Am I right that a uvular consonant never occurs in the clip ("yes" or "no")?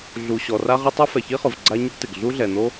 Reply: no